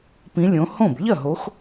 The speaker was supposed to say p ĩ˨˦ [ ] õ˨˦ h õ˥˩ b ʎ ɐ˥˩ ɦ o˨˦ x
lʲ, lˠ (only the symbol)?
lʲ